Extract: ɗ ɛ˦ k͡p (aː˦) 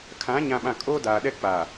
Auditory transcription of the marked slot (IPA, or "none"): aː˨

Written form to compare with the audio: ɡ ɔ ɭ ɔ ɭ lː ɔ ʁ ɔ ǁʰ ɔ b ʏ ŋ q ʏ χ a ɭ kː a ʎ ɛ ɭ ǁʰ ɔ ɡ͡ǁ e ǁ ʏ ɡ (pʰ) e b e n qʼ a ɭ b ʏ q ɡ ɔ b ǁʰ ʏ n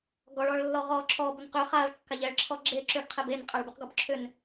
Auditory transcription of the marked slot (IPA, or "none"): qʰ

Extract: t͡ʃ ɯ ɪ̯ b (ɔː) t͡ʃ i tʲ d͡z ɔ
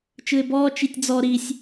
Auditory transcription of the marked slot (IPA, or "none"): ɔː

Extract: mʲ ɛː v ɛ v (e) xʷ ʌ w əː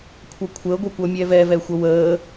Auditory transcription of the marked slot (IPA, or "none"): ɛ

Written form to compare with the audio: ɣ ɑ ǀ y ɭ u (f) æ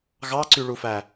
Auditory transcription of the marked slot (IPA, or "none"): f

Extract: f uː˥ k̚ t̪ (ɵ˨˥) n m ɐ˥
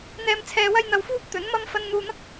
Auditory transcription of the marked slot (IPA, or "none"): ɵ˨˥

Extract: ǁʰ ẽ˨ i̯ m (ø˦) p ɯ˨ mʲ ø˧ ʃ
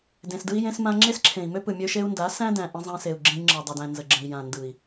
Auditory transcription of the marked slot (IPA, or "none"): ø˦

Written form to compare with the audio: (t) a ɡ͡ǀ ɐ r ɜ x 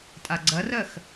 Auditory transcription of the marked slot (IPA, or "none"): tʼ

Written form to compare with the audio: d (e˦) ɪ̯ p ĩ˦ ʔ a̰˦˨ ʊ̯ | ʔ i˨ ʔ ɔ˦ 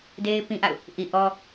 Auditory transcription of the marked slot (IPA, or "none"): e˦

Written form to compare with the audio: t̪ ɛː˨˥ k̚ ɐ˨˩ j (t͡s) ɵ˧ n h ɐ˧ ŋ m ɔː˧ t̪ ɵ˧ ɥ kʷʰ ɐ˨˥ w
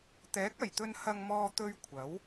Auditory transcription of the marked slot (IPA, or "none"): t̪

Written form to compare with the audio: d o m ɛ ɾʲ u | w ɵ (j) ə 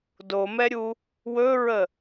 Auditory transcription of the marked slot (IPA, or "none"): ɹ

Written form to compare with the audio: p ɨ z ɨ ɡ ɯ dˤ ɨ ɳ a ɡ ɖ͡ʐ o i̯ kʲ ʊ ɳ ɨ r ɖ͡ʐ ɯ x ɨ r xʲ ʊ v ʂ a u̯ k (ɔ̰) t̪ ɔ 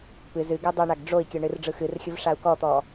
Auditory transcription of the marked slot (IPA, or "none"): ɔ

